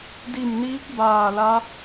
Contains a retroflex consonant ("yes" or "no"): no